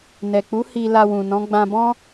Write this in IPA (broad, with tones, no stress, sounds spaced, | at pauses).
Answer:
n ɛ˨ k͡p u˨˦ h i˧ l a˧ w ũ˨ n ɔ̃˨˦ ɡ͡b ã˧ b ɔ̃˦